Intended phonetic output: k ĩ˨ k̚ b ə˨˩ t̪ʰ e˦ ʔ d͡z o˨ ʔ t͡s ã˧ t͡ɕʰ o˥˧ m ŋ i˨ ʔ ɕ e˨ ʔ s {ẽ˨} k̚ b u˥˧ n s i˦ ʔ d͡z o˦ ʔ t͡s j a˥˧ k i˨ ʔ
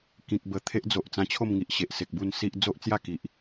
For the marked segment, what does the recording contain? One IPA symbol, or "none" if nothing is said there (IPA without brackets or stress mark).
e˨